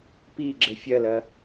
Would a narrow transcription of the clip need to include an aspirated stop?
no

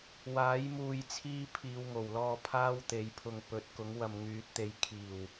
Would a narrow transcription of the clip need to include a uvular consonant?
no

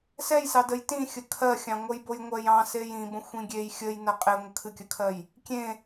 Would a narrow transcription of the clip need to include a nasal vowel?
yes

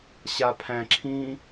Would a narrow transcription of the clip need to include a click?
yes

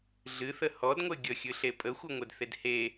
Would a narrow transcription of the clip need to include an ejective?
yes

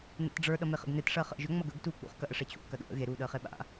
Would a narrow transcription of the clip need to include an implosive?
yes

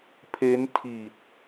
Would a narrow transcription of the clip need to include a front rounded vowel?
no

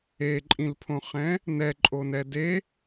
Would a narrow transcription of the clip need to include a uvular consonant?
yes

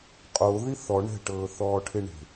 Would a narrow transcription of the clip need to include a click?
no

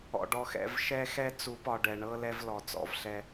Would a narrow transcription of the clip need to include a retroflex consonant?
yes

